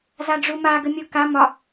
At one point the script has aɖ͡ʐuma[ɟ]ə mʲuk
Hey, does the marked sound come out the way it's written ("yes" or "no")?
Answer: no